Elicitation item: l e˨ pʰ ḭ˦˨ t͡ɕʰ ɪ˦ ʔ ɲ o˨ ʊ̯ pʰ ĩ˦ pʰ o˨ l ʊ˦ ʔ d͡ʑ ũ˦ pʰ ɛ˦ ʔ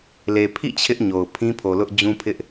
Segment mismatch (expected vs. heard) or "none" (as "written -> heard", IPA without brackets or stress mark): ɛ˦ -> ɪ˦